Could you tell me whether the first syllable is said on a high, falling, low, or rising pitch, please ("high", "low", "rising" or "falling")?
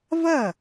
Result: falling